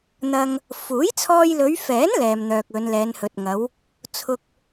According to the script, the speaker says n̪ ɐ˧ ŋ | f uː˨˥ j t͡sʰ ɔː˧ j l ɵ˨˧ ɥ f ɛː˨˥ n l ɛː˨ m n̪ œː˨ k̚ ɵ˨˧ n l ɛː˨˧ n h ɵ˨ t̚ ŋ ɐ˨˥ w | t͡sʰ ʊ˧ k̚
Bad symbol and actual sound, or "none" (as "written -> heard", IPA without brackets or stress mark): none